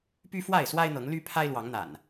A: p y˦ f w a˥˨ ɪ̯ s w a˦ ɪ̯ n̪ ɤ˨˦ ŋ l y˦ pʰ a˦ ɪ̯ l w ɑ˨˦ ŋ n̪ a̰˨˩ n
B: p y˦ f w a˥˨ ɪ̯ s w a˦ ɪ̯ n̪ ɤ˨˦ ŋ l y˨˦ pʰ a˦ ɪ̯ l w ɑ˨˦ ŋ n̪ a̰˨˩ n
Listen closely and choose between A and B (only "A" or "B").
A